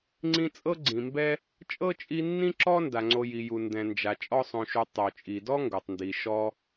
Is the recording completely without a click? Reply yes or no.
no